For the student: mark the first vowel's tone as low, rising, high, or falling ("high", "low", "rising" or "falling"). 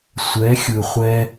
rising